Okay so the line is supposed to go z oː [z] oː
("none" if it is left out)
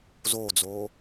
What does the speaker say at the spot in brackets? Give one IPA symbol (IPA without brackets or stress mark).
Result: d͡z